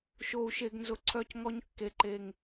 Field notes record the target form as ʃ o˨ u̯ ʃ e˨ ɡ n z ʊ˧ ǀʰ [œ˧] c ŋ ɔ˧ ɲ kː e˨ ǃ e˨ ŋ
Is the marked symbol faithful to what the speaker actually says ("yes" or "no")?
yes